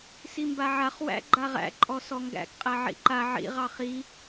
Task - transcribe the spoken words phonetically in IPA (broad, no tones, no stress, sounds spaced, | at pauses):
s i m b a ʕ a χ w æ̰ ɡ͡ǃ a ʁ æ̰ ǃʼ ɔ s ɔ ŋ ɡ æ̰ k qʼ æ ʕ ḭ ǃ a ʕ ḭ ʁ ɑ χ i